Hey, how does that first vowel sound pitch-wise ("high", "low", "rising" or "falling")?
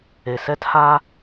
low